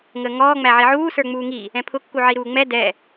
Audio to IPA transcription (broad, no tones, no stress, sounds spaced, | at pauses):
ŋ əː ŋ ɔː ŋ͡m æ ʕ i ʕ uː s ə˞ ŋ͡m uː ŋ i | ɛ̃ pʰ ʊ kː u ʕ i ɾ uː ŋ͡m ɛ d ɛ